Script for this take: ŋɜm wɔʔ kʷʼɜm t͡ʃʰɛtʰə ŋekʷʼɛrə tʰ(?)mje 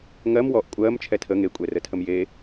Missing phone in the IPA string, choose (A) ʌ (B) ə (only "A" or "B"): B